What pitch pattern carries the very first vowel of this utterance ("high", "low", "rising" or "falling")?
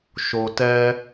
low